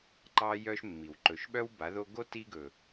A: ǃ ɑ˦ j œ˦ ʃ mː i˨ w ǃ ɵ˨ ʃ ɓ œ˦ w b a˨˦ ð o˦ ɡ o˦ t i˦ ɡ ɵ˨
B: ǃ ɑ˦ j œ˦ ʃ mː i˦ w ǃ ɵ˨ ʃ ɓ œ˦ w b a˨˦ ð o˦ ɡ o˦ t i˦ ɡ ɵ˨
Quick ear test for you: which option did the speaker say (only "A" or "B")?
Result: A